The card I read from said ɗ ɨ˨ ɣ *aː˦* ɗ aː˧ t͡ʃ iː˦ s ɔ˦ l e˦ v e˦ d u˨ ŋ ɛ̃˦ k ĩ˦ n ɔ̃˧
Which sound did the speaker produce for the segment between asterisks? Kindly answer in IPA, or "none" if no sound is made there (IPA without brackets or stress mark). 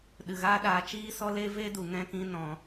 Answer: aː˦